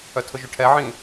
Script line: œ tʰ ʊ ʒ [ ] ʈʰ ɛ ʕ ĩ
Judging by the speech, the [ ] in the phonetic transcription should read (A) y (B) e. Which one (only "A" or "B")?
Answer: A